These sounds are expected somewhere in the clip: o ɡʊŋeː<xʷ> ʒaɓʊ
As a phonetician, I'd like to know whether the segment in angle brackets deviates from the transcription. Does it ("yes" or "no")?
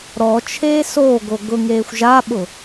no